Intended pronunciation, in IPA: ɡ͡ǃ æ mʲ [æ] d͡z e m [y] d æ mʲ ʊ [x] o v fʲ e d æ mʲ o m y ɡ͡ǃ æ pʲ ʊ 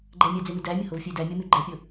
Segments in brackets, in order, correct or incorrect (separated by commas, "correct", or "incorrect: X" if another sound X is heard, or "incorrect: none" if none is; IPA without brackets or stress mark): correct, correct, incorrect: h